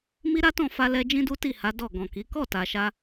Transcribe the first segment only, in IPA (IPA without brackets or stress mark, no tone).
m